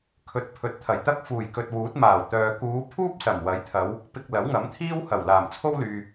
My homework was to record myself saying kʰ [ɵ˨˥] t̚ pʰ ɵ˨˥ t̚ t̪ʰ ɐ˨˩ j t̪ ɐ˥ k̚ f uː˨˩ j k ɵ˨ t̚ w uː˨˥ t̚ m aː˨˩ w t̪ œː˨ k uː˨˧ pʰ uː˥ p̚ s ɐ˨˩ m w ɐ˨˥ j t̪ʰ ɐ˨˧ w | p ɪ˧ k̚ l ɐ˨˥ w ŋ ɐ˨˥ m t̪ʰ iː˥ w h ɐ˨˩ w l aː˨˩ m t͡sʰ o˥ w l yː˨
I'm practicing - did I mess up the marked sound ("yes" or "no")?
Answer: no